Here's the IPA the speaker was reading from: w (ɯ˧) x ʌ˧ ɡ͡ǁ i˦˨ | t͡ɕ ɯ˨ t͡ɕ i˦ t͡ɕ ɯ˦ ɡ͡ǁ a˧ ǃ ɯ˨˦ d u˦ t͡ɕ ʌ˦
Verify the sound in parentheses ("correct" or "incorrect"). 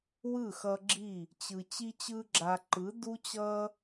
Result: incorrect